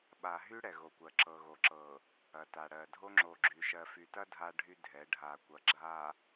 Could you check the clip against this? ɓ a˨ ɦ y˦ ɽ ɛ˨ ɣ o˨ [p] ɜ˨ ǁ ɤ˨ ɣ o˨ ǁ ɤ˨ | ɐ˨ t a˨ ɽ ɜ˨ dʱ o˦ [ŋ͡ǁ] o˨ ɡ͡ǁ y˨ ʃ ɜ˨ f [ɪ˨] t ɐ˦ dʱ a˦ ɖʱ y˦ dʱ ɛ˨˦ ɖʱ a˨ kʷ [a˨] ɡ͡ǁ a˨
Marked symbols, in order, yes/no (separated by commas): no, yes, no, no